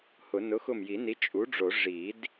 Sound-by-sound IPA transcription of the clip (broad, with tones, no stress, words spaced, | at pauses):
hʊ˨˩˦ nʊ˩˥xʊ˧˩mji˨˩˦ni˩˥ t͡ʃʼu˩˥ɖ͡ʐo˨˩˦ ʐi˨˩˦d